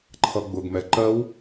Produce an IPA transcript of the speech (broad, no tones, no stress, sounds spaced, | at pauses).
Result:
ǃʰ ʌ ɡ͡b ʊ ɡ m ɛ ǃ ɜ w